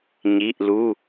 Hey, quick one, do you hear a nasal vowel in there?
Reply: no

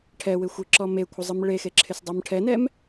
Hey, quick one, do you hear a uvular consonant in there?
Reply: no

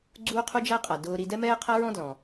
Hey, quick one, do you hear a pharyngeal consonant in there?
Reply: no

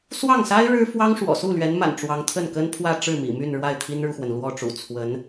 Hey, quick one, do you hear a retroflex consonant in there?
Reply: yes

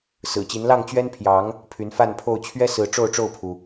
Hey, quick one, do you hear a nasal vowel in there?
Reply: no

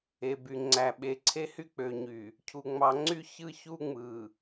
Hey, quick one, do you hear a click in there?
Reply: yes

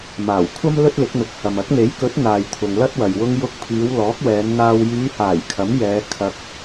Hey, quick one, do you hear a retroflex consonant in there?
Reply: no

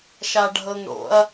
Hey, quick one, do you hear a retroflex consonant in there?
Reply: yes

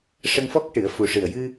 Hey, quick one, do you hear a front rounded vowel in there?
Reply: no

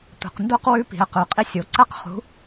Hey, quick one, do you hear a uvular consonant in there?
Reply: yes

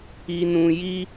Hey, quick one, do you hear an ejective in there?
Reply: no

